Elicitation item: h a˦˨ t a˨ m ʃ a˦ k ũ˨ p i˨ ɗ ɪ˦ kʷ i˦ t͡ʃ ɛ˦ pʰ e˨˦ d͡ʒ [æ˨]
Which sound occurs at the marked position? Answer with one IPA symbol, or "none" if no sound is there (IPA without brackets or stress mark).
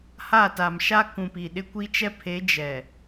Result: ɛ˨